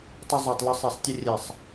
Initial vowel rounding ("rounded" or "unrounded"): unrounded